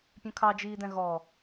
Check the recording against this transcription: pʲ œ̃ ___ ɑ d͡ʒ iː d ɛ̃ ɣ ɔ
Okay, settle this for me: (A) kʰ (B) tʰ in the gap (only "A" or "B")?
A